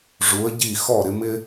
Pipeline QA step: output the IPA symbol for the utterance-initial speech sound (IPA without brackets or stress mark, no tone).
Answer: ʐ